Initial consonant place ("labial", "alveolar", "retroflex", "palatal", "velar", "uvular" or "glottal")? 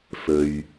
labial